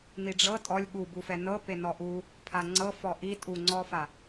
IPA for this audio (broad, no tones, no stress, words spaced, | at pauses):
niɖ͡ʐɤ tʼɔlʲ ɠu bufɛnɤ penɔʔu | pʰaŋ͡ǀɤ fɔʔi tʼuŋ͡ǀɔfa